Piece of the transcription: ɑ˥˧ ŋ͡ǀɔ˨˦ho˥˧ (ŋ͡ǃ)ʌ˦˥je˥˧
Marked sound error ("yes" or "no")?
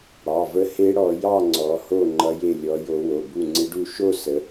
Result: no